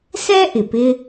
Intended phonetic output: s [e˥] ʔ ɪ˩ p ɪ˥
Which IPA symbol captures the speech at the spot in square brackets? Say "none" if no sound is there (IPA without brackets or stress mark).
ɛ˥